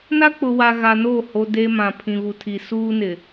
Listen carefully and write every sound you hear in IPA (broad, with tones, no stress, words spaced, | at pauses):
na˦k͡pʊ˨ wa˨ ɣa˨noː˦˨ ho˨ de˦mã˨ pʰĩ˨βu˨tʰi˨ suː˦nɪ˨